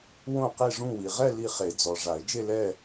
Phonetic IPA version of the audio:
w õ˥˧ q i˥˧ ʐ ũ˥˧ w i˨ ʁ ɛ˥˧ l i˥˧ χ e˨˩˦ d͡z ɔ˨ ʐ a˨˩˦ ɪ̯ d͡ʒ e˥˧ l ɛ˥˧

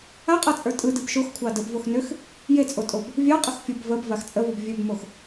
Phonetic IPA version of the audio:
a qʼ a t͡sʼ ə˞ tʼ ɯ d ɯ b ʃ o x kʷʰ ɑ d ə b v o x n ø x | j e t͡sʼ o tʼ o b | vʲ ɑ qʼ ə x fʲ ə b v ə b v a x t͡sʼ ə v ɯ b vʲ ø b m o x

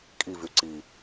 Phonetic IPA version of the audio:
kʼ i v y ǀ i

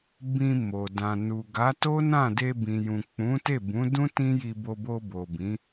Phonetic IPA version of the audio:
b ĩ˧ m o˨ d ã˨ n u˨ ɡ a˨˦ t o˦ n ã˦˨ d e˧ b ĩ˨ j ũ˨ k͡p ũ˨˦ t e˦˨ b ũ˨˦ d ũ˦ t ĩ˦ j i˧ b o˧ b o˧ b o˨ b ĩ˨˦

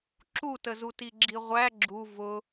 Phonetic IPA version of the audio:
ǁ u t ə z u t i ɡ͡ǁ i ʁʷ æ ɡ͡ǁ u v ʊ

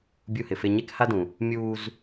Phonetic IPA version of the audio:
bʲ u˦ h ɪ˨ f e˦ ɲ e˦ k h a˦ d ũ˨ | mʲ uː˦ z

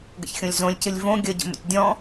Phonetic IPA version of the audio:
ɡ ə̰ ç xʲ õ lʲ z õ lʲ c ɨ lʲ v õ ɡʲ ə ɟ ə̰ m ə̰ tʲ dʲ ɔ̃

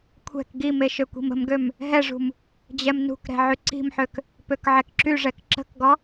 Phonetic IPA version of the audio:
kʷʰ ɛ̤ k ɡ i m e ʃ ø kʷ i̤ m ə̤ m ɡ ø m | ɦ ɛ ʐ ṳ m | d͡ʑ ɛ m n ṳ k ɾ ɛ̤ ʕ y ǀ i̤ m ħ ø k | p ø k ʕ ɛ k ǁ y ʐ ɛ k ǁ ə̤ k ɡ ɔ

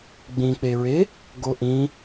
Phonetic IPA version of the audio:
ɡ͡b ĩ k͡p e ɹ e | ɡ o ʔ ĩ

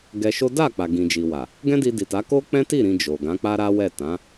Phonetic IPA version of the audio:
ɡ ɛ˧ ʃ o˦ d a˦˨ k͡p a˨ ɡ ĩ˨ d͡ʒ i˨ w a˨ | ɡ ɛ̃˦ d i˧ d i˨ t a˨˦ k o˦ k͡p ɛ̃˦ t i˦˨ ɾ ĩ˧ d͡ʒ o˨ ɡ ã˨˦ k͡p a˦ ɾ a˦ w ɛ˦˨ t ã˨˦

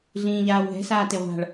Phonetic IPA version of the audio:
ɮ ĩː ʎ aː w ɦ ɛ̤ s aː t e ʁʷ a̤ ɭ

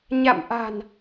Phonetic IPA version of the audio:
ɲ a̰˧˨ m ʔ a̤˨˩ n

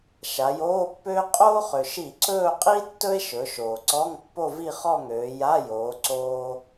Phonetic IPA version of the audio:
ʃ a˩˧ j oː˧˥˧ pː øː˥ qʼ oː˥ χ ø˩ ʃ i˧˩˧ ǀ ɵː˥˧ qʼ i˥ tː ɵ˥ e̯ ʃ ɵ˩˧ ʃ oː˩ ǀ ɔ˧˥˧ ŋ pː o˥˧ v i˥˧ χ ɔ˥˧ ŋ øː˩˧ j a˧˥˧ j oː˩˧ ǀ oː˥

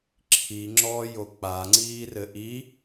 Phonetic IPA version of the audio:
ǁʰ i ŋ͡ǁ ɔ j o k͡p a ŋ͡ǀ iː r ɘ ʔ i

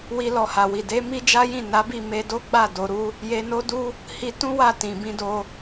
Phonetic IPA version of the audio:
w i˦ l ɔ˧ h a˨ w i˨ d e˨˦ m i˦ d͡ʒ a˦ j ĩ˦˨ n a˨˦ b i˦˨ m e˧ d o˦ ɡ͡b a˦˨ d o˨ ɾ u˧ | j e˧ n o˦ d u˦ | h i˧ t ũ˦ w a˦˨ t ĩ˨ b ĩ˧ d o˧

